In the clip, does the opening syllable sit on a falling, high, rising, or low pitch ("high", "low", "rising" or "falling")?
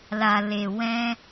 low